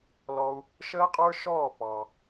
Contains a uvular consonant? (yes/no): yes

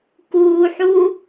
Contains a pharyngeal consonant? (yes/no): yes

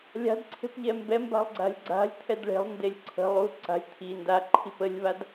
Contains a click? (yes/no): yes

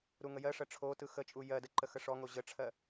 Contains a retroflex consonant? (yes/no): yes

